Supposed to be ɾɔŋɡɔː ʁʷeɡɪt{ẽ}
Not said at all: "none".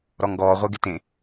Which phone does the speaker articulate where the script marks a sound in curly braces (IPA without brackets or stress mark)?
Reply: ẽ